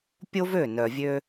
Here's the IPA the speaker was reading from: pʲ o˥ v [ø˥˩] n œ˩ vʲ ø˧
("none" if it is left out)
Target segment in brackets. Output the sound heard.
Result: ø˥˩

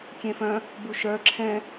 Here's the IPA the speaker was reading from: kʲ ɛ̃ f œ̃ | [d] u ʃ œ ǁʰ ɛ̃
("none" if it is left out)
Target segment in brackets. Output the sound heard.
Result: b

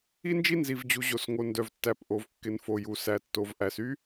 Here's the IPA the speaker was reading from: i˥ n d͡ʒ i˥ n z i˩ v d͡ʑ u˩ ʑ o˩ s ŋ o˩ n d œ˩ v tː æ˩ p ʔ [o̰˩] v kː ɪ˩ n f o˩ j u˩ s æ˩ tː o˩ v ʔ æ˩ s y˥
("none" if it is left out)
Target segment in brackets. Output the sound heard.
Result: o˩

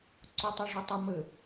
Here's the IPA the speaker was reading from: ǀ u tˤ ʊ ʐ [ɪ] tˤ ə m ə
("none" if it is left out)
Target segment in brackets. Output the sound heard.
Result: ɪ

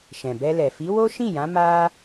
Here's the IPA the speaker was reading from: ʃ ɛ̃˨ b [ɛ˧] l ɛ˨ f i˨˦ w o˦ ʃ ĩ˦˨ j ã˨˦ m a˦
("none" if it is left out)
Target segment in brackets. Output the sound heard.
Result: ɛ˧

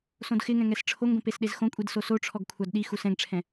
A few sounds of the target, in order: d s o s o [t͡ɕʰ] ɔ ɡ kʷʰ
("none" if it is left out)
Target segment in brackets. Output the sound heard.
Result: ʈ͡ʂʰ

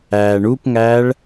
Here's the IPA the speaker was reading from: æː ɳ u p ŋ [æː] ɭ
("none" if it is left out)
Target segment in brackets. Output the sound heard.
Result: æː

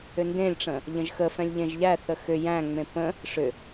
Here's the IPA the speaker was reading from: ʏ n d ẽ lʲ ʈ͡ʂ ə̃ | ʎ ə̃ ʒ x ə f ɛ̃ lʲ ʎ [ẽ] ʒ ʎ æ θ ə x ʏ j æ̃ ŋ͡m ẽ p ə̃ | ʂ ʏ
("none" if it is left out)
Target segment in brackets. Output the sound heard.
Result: ẽ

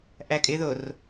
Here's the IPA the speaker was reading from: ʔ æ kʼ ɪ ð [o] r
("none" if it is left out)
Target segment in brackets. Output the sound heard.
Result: o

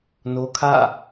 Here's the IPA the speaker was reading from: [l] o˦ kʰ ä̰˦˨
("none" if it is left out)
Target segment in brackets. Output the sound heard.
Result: n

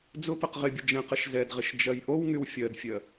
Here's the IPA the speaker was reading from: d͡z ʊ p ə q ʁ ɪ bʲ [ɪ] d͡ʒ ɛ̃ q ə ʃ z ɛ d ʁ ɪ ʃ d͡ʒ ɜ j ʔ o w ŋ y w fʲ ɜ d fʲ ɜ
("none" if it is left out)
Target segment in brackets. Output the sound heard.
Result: ə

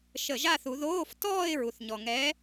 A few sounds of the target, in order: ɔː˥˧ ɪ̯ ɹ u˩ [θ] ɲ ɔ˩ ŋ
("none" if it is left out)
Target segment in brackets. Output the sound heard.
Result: θ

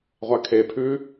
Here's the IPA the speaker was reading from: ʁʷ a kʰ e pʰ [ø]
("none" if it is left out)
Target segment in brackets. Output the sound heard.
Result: ʉ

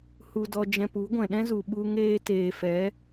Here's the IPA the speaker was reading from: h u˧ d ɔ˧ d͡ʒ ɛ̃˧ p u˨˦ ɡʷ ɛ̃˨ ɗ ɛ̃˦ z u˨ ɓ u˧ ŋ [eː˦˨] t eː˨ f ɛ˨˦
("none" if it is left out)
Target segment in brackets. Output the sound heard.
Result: eː˧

